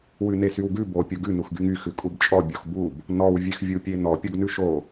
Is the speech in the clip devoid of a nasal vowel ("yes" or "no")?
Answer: yes